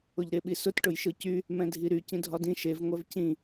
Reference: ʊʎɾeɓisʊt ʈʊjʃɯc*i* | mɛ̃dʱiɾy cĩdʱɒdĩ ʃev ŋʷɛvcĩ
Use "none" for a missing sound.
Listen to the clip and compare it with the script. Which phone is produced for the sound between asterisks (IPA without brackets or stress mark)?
y